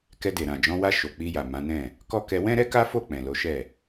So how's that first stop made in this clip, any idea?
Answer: plain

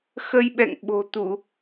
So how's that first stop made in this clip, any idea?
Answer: implosive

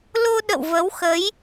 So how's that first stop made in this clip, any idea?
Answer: implosive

